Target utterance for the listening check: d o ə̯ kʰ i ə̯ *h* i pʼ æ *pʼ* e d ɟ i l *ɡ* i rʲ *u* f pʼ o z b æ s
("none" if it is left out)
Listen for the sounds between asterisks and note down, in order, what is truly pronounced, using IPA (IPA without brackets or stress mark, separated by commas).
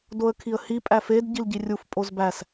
h, f, ɟ, u